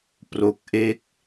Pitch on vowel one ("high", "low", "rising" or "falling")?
low